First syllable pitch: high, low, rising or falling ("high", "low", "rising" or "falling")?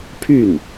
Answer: falling